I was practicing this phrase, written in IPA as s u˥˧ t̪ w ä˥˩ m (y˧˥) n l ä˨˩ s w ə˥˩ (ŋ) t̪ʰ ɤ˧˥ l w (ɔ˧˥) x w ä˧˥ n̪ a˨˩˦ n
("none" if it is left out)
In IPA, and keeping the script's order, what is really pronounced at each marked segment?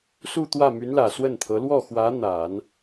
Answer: y˧˥, n, ɔ˥˩

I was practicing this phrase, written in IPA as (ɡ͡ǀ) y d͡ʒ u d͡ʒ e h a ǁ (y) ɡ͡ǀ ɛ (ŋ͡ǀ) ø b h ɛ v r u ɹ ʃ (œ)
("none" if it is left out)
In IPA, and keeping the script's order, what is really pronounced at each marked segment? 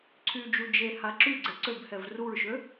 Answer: ǀʰ, y, ǀ, ø

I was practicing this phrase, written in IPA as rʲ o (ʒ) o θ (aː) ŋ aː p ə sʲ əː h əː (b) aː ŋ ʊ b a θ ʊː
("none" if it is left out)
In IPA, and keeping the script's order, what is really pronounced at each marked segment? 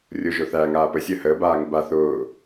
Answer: ʒ, æː, b

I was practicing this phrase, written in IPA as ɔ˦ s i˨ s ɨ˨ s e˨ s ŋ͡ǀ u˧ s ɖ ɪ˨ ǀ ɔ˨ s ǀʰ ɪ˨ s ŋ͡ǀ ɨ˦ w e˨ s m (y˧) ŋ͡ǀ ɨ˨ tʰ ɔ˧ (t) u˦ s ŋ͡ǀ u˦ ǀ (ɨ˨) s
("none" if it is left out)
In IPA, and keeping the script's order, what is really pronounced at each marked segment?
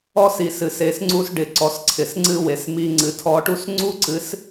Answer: i˧, ʈ, ɨ˨˦

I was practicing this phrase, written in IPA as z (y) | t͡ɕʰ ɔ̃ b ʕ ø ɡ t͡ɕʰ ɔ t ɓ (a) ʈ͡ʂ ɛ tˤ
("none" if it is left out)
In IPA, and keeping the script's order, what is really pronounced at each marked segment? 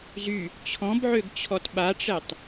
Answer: y, a

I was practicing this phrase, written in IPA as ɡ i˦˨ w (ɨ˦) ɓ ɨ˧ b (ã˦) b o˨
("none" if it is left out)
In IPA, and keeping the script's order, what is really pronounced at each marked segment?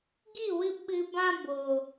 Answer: ɨ˧, ã˦

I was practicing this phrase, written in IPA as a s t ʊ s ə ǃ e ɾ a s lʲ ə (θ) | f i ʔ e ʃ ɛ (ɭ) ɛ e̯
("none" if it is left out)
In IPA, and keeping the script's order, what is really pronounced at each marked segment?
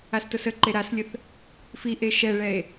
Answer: θ, ɭ

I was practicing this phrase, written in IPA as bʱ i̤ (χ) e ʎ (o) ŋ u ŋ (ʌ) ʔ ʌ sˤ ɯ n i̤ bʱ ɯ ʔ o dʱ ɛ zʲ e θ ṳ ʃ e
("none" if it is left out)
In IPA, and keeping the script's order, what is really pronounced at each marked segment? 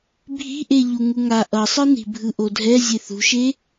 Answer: ʔ, u, a

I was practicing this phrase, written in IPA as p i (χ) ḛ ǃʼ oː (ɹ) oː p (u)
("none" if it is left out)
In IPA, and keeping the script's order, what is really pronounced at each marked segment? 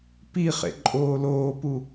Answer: χ, l, u

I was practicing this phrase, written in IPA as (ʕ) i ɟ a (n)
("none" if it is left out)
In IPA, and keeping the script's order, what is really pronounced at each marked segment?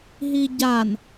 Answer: ɦ, n

